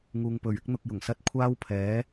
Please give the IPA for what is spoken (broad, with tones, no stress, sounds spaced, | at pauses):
ŋ uː˧ ŋ p ɵ˨ ɥ ɪ˥ k̚ n̪ ʊ˧ k̚ j ʊ˨˩ ŋ s ɐ˥ t̚ kʷʰ aː˥ w pʰ ɛː˨˥